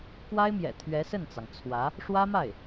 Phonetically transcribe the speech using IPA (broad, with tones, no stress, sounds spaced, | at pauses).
k w a˥ ɪ̯ m j ɛ̰˨˩ t̪ʰ ɥ ɛ˧˥ s ə˥˩ n t͡s ɑ˩ ŋ t͡sʰ w ä˧˥ | ʂ w ä˥ m a˥˩ ɪ̯